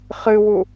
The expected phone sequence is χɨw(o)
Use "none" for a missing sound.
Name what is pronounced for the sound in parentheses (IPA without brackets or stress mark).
u